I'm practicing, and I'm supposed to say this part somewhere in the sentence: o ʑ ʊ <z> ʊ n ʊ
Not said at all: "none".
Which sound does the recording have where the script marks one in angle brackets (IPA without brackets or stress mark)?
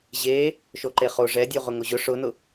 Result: ʂ